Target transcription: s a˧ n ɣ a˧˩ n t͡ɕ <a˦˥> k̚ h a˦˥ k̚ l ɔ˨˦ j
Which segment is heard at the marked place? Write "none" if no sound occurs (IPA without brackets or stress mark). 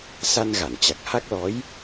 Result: a˨˩